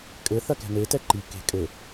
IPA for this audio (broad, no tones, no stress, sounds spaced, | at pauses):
kʼ ɘ θ ɐ k ɛ̤ n e t ɛ ǃ i k e̤ kʼ ɘ